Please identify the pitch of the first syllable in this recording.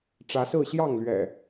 rising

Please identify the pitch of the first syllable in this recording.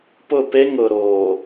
falling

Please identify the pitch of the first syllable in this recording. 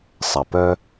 low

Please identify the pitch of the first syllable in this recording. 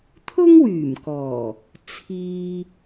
high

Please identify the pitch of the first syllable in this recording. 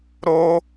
high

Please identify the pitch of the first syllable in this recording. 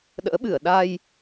rising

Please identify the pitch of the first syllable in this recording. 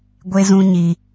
low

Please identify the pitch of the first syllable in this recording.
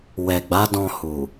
low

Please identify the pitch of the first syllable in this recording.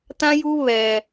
high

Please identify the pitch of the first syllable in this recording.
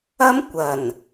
high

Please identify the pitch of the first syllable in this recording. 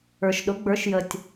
low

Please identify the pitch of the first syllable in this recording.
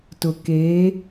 low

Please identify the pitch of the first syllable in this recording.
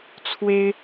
high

